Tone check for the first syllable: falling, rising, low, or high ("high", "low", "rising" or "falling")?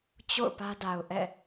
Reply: falling